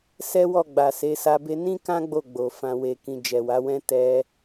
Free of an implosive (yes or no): yes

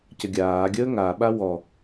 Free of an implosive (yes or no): no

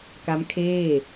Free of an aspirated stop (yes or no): no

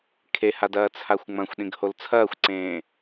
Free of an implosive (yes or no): no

